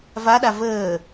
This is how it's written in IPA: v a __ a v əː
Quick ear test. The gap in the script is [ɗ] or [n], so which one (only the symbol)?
ɗ